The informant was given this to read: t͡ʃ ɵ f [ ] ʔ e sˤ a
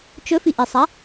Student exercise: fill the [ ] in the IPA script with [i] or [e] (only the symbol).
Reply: i